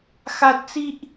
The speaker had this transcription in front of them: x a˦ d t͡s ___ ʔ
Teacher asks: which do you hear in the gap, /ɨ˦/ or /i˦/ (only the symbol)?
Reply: i˦